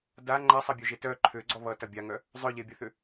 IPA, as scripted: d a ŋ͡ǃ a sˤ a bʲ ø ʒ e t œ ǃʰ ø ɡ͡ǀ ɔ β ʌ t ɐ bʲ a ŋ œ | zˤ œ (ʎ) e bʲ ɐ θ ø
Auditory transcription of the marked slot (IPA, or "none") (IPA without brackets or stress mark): ʎ